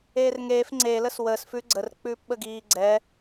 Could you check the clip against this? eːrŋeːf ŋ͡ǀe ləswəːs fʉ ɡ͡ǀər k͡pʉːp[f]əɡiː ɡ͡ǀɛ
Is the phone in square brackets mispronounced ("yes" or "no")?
yes